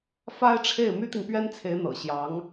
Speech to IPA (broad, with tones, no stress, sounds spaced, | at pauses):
f a˥ ɪ̯ ʈ͡ʂʰ e˥˩ ɪ̯ m y˥ t̪ i˨ ŋ p ɥ ɛ˥ n t͡sʰ e˧˥ ɪ̯ n̪ ɤ̰˨˩ ɕ j ɑ˧˥ ŋ